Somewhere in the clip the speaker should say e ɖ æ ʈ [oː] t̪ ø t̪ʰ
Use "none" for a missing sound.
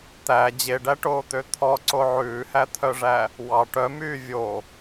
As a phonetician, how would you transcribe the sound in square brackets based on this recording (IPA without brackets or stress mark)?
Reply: oː